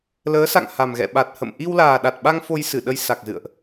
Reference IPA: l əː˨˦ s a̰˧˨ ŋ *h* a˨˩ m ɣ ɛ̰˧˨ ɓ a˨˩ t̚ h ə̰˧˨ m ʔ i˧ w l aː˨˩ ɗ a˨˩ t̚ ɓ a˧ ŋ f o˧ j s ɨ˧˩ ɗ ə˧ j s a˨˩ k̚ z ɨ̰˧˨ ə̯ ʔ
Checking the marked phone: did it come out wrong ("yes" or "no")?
no